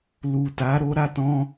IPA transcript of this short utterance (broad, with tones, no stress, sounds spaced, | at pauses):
l u˨ t a˨˦ ɾ o˧ ɾ a˧ t ɔ̃˧